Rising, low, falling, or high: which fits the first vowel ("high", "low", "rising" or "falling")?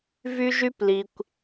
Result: high